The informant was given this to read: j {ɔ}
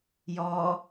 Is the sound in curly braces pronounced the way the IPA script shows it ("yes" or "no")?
yes